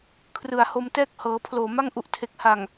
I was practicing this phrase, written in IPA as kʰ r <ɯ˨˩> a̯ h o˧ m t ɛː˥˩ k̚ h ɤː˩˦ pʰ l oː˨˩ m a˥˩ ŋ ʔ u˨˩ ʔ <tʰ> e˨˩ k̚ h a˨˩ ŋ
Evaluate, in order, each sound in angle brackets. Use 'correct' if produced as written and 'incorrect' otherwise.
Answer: correct, correct

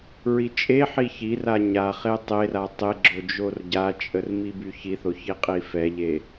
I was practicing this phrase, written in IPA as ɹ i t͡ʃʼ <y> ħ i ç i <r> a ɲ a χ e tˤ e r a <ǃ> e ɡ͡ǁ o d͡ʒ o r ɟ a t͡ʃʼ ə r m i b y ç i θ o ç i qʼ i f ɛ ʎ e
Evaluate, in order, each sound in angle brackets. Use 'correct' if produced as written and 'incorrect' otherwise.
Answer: incorrect, correct, incorrect

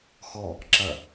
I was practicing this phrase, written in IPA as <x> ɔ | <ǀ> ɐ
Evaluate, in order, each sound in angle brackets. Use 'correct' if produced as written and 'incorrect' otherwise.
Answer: correct, incorrect

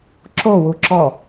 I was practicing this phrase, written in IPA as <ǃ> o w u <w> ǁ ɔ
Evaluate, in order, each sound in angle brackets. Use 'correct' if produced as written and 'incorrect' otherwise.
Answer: incorrect, incorrect

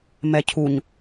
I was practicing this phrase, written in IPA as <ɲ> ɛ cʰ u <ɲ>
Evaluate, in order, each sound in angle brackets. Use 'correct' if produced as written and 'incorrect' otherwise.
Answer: incorrect, correct

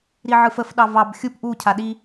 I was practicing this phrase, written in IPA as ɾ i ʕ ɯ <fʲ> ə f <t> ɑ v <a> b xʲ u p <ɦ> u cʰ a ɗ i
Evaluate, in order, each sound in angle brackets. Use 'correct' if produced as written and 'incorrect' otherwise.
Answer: incorrect, incorrect, incorrect, incorrect

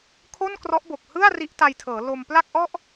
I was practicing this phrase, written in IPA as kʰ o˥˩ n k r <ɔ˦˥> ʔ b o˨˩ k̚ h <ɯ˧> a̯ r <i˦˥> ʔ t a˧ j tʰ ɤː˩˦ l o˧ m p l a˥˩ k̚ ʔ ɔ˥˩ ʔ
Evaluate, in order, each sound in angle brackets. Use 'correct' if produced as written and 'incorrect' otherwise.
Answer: correct, incorrect, correct

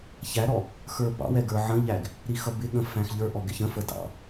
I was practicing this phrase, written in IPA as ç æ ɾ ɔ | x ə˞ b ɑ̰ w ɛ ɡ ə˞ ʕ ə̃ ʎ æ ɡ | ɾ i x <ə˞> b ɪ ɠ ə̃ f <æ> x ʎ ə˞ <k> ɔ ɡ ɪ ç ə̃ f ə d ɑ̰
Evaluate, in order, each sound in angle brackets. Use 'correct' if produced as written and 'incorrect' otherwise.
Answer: incorrect, incorrect, incorrect

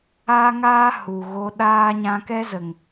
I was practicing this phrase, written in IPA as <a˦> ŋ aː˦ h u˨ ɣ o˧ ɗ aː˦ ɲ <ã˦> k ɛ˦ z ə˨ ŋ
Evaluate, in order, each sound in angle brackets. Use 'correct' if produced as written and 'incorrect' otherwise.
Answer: correct, incorrect

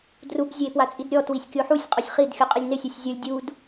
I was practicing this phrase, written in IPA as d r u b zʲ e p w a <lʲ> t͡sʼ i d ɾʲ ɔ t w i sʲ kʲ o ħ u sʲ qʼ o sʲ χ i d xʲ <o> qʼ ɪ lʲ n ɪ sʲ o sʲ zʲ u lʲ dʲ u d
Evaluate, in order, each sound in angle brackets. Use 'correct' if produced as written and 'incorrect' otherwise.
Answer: incorrect, incorrect

